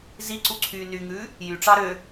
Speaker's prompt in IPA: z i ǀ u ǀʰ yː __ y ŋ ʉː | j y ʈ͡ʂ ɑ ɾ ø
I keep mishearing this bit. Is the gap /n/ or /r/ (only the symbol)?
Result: n